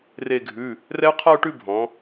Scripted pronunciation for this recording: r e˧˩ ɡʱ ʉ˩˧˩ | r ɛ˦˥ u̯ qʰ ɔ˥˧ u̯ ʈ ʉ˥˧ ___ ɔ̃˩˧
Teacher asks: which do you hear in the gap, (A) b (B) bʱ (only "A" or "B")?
B